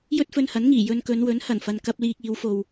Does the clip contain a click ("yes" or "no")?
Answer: no